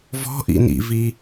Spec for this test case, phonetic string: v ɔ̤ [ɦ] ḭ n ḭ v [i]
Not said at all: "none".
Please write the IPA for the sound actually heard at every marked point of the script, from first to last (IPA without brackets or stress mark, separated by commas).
ʔ, i